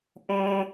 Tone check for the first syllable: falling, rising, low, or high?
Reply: high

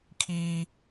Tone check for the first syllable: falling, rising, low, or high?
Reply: high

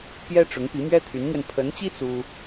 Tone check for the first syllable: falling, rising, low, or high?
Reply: high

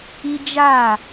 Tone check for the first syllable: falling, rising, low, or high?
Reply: high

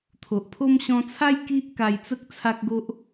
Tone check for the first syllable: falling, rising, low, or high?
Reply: low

